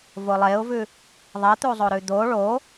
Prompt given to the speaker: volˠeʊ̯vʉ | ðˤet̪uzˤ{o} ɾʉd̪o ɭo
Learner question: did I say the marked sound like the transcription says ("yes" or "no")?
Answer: yes